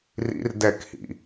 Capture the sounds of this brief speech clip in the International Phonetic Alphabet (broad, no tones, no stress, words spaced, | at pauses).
rḭr dɛkhḭ